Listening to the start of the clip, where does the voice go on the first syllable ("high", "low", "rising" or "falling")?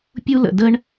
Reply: high